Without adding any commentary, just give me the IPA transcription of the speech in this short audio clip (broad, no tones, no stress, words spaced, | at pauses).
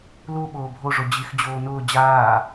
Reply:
lu ɓoːbʱo ʐod͡ʑix d͡ʑoːnʊː d͡ʑaː